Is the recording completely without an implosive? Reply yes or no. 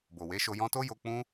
yes